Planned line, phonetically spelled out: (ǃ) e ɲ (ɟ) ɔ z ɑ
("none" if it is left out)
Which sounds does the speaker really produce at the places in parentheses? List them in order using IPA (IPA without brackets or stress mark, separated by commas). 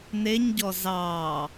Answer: n, ɟ